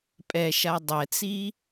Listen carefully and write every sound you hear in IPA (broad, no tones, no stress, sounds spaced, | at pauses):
pʼ ɛ ʃ a dˤ ɛ t͡s i